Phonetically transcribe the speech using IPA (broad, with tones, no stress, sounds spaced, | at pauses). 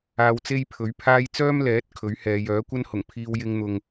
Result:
aː˧ w t͡s e˥ j pʰ ɵ˨˥ ɥ pʰ aː˥ j t͡s œː˥ m l ɛː˨˥ t̚ kʰ ɵ˨˥ ɥ h ɛː˨˧ j œː˨˥ kʷ ɐ˥ n h ʊ˨˩ ŋ pʰ iː˧ w j ɪ˧ ŋ n̪ ʊ˨ ŋ